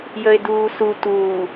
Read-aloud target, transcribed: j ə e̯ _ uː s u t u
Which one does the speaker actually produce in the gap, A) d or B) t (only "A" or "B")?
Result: A